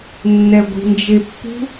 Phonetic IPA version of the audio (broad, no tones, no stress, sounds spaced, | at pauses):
nː ɛ ɡʷ i̤ n d͡ʒ e pː ṳ